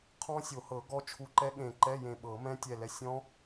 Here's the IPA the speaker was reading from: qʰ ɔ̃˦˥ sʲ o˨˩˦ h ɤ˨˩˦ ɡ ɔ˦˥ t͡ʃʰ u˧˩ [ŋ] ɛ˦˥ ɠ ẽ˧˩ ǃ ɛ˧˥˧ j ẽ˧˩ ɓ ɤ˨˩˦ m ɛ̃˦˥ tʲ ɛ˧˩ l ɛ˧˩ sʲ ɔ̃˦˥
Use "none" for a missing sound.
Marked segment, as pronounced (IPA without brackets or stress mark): ǃ